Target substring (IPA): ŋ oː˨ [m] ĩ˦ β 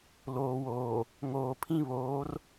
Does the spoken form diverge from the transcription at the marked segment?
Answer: yes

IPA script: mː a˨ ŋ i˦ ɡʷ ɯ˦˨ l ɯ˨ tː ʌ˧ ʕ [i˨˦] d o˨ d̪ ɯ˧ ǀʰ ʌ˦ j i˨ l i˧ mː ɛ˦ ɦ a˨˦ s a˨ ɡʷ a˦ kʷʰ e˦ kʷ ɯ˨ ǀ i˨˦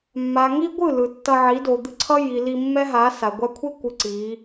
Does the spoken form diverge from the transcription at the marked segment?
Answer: no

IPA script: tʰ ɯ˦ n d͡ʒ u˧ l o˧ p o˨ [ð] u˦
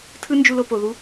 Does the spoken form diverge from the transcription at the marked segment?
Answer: no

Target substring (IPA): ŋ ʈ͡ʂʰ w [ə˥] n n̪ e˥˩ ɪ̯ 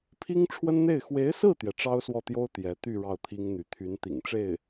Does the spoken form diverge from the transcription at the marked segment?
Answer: no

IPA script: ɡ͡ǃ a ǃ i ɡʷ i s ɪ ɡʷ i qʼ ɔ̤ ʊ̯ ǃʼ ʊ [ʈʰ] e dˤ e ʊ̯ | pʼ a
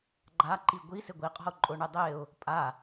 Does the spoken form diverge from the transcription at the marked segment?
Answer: yes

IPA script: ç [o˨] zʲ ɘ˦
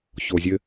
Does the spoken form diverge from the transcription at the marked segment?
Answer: no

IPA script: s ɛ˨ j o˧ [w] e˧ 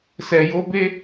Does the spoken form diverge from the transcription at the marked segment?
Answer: yes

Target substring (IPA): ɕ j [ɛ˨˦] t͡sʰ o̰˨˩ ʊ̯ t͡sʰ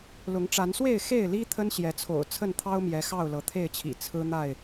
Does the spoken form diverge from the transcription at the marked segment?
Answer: no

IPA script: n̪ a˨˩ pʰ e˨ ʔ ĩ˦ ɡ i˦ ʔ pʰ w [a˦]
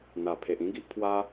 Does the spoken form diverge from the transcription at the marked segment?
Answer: no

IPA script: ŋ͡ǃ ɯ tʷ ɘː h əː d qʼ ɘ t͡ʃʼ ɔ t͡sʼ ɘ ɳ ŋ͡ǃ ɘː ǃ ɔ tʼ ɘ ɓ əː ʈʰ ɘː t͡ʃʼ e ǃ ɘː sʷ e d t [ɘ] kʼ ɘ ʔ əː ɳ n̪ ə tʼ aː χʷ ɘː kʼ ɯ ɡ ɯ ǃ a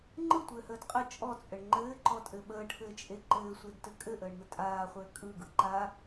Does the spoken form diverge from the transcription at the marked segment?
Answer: no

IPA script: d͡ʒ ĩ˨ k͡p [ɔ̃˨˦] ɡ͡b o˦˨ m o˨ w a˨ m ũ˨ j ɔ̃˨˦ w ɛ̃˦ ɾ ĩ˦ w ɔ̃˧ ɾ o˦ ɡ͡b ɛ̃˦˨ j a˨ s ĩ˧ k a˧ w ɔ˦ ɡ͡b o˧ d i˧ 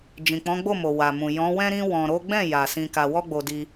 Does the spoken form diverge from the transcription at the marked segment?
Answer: no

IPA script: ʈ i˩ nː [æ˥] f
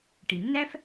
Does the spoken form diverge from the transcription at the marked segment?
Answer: no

